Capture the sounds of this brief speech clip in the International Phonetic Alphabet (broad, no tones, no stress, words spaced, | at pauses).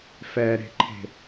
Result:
fɛɾe̤ǃʰe̤